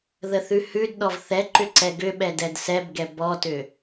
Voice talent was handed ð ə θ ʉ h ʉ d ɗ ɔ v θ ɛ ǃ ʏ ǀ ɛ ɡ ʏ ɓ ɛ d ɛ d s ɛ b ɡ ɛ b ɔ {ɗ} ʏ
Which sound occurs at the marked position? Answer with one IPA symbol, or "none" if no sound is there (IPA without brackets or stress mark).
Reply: t